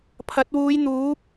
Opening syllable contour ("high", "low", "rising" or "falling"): rising